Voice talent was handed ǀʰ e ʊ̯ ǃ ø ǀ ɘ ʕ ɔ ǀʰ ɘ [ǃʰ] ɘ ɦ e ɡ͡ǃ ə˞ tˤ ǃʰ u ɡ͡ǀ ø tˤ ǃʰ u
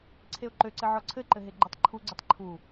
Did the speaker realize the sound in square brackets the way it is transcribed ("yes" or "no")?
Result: no